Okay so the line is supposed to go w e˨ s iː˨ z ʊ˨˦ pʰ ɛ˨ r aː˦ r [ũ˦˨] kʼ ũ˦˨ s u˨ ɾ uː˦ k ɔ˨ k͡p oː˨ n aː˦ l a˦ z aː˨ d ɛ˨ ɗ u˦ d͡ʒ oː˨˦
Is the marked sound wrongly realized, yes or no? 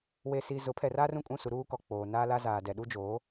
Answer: no